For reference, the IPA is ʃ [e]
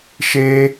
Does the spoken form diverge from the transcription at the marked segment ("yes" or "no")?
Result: no